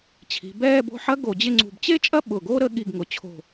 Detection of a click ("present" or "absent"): present